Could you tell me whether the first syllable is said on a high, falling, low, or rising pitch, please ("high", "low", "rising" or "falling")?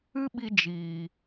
high